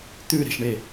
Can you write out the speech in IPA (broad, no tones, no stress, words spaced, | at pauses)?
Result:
t̪ʉɾe̤ʃɳe